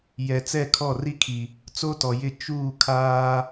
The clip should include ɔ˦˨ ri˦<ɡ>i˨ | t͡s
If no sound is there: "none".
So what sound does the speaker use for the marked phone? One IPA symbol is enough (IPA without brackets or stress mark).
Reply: kʰ